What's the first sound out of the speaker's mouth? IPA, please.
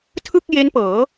tʰ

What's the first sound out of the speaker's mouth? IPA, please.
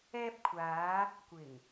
ɛː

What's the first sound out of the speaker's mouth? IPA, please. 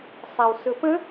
sˤ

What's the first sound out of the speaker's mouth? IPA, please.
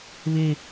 β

